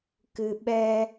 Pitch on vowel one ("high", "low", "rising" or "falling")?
low